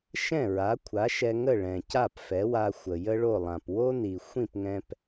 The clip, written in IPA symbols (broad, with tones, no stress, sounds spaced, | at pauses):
ʃ ɛ̃˥˩ ɹ a˩˥ kʷʰ a˩˥ ʃ ɛ˧ ŋ ə˥˩ ɭ ɛ̃˩ c a˥˩ p f ɛ˩˥ w a˧ xʷ ə˩ j ə˥ ɭ o˥˩ lˠ ã˩ p w o˥ n i˩ xʷ ĩ˥˩ p ŋ ɛ̃˧ p